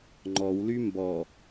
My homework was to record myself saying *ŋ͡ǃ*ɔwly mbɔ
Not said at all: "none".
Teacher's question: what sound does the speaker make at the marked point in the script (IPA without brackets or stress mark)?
ŋ͡ǃ